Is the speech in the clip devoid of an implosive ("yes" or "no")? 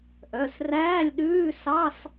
no